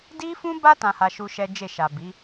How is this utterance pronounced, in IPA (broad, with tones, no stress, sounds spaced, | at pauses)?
d i˦ f ũ˦ b a˦ t ã˧ h a˧ ʃ u˧ ʃ ɛ˦ d͡ʒ e˦˨ ʃ a˨ b i˨˦